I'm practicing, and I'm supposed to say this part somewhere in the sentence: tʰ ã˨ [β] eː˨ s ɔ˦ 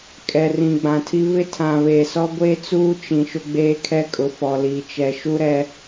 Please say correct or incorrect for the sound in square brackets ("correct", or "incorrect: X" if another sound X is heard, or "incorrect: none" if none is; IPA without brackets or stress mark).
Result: correct